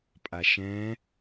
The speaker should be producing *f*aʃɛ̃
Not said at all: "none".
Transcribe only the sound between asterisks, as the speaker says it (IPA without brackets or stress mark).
pʼ